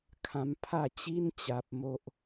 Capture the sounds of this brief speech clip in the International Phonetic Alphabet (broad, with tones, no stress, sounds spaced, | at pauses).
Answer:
kʰ ã˦ m pʰ a˥˧ t͡ɕ i˦ n t͡ɕ a˨ p̚ m o˦ ʔ